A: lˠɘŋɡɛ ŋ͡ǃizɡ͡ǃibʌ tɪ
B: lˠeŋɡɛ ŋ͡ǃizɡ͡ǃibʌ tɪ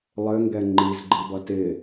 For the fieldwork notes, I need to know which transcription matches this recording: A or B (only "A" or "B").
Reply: A